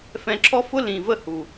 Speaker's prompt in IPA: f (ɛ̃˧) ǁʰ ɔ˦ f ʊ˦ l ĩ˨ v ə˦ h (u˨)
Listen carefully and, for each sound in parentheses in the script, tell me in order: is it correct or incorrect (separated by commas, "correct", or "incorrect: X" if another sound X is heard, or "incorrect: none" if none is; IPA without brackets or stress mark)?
correct, correct